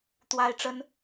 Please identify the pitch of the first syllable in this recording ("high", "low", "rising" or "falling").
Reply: high